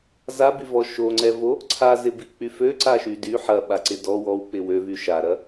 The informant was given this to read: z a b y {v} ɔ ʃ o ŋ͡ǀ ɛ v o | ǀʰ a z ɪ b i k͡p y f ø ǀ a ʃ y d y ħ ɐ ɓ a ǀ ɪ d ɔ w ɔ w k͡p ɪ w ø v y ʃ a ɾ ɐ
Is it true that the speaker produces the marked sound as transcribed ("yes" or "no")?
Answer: yes